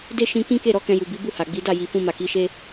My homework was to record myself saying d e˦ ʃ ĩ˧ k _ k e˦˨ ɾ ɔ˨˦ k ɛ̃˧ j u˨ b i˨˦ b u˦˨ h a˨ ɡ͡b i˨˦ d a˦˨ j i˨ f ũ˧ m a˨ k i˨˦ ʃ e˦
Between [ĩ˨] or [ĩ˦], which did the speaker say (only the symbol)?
ĩ˦